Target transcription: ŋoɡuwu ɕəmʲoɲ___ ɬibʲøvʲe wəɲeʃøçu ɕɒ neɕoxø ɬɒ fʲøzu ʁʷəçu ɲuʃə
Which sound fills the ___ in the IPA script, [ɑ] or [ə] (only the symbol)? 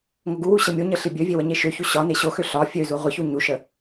ə